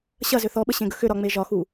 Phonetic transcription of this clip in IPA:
ɕ ɐ z ʏ θ ɔ ɓ ə ɕ ẽ ɡ ə x ʏ ɾ ɒ ŋ͡m e ʒ ɒ x u

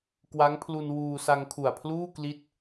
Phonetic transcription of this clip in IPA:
k w a˦˥ ŋ pʰ l u˧ n w uː˧ s a˧ ŋ kʰ u˨˩ a̯ pʰ l uː˥˩ k l i˥˩ t̚

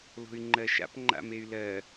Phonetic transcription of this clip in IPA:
l o̤ y̯ ŋ͡ǃ ɜ ʃ a̰ p ŋ͡ǃ a̰ m e y̯ l ɜ

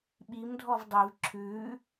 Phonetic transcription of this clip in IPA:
ɓ i m dʱ ɔ v dˤ i v ǁʰ ʉ

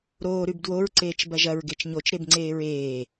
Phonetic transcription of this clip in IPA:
ɾ oː ɾ ʉ b d w o ɹ ǀ eː t͡ʃ b ɐ ʒ ɐ ɹ ɡ e t͡ʃ ɲ o t͡ʃ ɾ e b ŋ͡ǀ eː ɹ eː

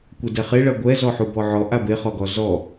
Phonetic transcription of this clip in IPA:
kʷ ɛ d ɛ χ e ɭ ɐ ɡʷ ɛ z ɔ ħ u b ɔ ʕ ɔ ʔ a b e χ ɔ ɡ ɔ z ɔ

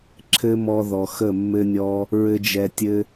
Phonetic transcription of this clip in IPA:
ǁʰ ɘ˦ m ɔ˧ ð ɔ˨ x ə˦˨ mː ɘ˦ nʲ ɔ˦ | ɹ ɘ˦ d͡ʒ ɛ˧ tʲ ɘ˦

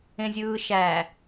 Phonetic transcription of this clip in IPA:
ẽ zʲ ɯː ʃ æ

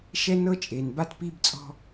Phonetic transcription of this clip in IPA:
ʃ ɛ˦ n ɤ˦ t͡ʃʼ e˨ n b a˦ t p i˦ b t͡sʼ ɔ̤˦

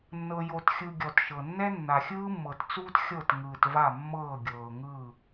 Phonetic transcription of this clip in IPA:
nː ɤ˩ j o˩ t xʲ ɯ˩ ɡʲ ɔ˩ t ʃ ɤ˩ nː ɛ˥ nː a˩ xʲ ɯː˥ mː ɤ˩ t t͡s uː˥ t xʲ ɤ˧˩ t ŋ ɯː˩ t v a˧˩ mː ɤː˧˩ ɡʲ ɤː˩ ŋ ɯː˧˩

